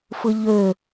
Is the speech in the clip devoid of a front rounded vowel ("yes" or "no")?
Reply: no